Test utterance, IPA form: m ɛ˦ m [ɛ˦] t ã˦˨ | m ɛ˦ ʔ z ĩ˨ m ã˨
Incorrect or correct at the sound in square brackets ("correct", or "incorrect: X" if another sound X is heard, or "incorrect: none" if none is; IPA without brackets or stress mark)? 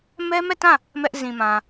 incorrect: ɛ˦˨